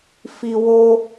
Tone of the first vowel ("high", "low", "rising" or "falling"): high